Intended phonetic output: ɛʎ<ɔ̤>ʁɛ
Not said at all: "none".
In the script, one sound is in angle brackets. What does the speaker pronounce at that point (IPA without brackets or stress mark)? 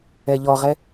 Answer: ɔ